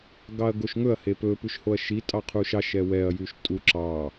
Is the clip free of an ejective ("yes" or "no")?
no